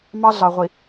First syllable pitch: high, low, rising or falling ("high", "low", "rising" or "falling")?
high